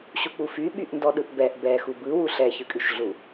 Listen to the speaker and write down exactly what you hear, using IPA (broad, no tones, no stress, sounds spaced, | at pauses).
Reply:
ɕ u k͡p u f y ɓ y ʔ n d ɔ ɗ ɯ ʔ b ɛ ʔ b ɛ x u b ɯ w u ɬ ɛ ç ɯ kʼ y ʃ ɮ u